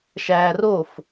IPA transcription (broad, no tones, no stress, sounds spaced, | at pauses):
ʃ æː r o f